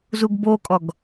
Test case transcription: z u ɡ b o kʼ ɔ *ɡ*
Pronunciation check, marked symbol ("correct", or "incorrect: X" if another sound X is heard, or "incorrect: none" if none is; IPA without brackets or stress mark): correct